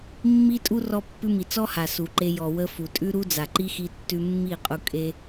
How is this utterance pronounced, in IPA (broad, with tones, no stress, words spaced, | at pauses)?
mːi˦tʼu˦ rɔ˧pːʉ˧ mi˨t͡sɔ˦ ha˨su˨ǃe˧ jɔ˨wə˧ fu˨tʼʉ˦ɾu˦ d͡za˨ǃi˦ xi˧tːʉ˧mːi˦˨qʼu˧ kʼe˦